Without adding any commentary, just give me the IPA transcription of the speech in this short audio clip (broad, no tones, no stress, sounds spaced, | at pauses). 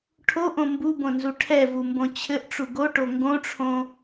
ʈʰ o ʔ õ m b u b õ n z u ʈʰ ɛ v u m b õ t͡ɕʰ ɘ ʔ ʈ͡ʂ u ɡ o ʈ o ŋ ɡ õ ʈ͡ʂʰ õ